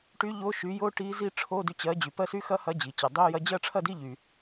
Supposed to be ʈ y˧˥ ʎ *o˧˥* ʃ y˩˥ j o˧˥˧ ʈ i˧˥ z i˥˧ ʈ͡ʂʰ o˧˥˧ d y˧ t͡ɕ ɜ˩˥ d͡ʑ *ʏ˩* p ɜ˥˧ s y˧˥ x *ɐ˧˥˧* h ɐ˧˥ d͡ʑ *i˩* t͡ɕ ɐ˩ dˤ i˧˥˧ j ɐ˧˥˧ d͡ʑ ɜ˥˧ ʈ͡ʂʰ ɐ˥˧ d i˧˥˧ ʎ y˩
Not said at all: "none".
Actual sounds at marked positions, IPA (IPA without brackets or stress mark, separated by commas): o˧˥, y˩, ɐ˧˥, i˩